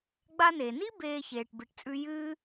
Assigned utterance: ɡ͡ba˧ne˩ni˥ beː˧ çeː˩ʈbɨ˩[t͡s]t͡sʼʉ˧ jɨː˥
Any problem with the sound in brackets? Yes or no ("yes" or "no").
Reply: yes